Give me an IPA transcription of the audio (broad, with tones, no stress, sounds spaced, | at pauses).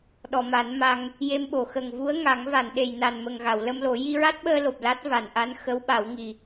ɗ ɔ˨˩˨ m a˨˩˦ n m a˧ ŋ | j e˧ m ɓ o˨˩˨ x ə˨˩ ŋ v u˧˥ ə̯ ŋ a˨˩˦ ŋ v a˨˩˨ n ɗ e˨˩ j n a˨˩ n m ə˨˩ ŋ ɣ a˨˩˨ w l ə˧ m l o˨˩˦ j i˧ ɹ a˦˥ t̚ ɓ əː˧ l o˨˩ p̚ l a˦˥ t̚ v a˨˩˨ n ʔ a˧˥ n x ə˧˥ w ɓ a˨˩˦ w ŋ i˨˩